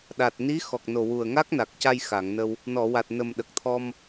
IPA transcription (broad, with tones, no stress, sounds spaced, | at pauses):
ɗ a˨˩ t̚ n i˧˥ x ɔ˨˩ k̚ n o˨˩ w u˨˩ ə̯ ŋ a˦˥ k̚ n a˨˩ k̚ c a˧ j x a˨˩˨ ŋ n ə˧ w | n ɔ˨˩˨ w a˨˩ t̚ n ə˨˩ m ɗ ə˨˩ k̚ t̪ʰ ɔ˧ m